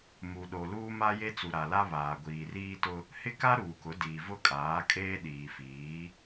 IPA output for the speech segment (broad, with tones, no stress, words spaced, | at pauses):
mu˨ɗo˨ luː˦ma˦je˦t͡su˨ ɾa˨la˦ βaː˨ɡʷiː˨riː˦tʊ˦ | hɪ˦ ka˦ ɾuː˨kʊ˨˦diː˨ vʊ˦˨kʼaː˨˦kʼeː˦ ɗiː˨fiː˨˦